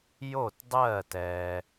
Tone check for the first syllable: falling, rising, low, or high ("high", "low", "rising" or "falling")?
falling